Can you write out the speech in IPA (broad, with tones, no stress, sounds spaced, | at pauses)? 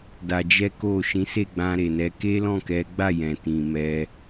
d a˧ d͡ʒ ɛ˦ k o˦˨ ʃ ĩ˨˦ s e˦˨ ɡ͡b ã˧ ɾ e˨ n ɛ˨˦ k e˦ l ɔ̃˦˨ k ɛ˨˦ ɡ͡b a˦˨ j ɛ̃˨ t ĩ˨ m ɛ˧